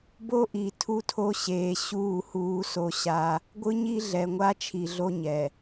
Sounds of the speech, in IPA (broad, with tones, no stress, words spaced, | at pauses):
bo˦ʔi˨ tʰu˦tʰo˦ɕeː˨ ɕuː˦˨huː˦so˦ ɕa˦ | ɡʷɯ˦ɲi˦ ɮɛ˨ŋʷa˦t͡ʃʰi˨ ɮo˦ɲɛ˨